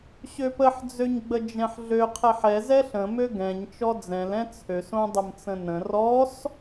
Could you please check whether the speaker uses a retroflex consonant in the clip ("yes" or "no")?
no